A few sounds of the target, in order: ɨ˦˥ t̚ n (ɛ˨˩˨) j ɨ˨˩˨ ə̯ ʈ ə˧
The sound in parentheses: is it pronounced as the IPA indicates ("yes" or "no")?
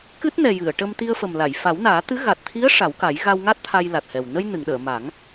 no